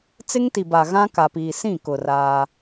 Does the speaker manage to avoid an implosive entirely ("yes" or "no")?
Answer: yes